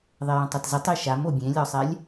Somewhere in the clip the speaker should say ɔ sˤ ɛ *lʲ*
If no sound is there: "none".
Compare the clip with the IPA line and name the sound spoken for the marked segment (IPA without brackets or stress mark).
lʲ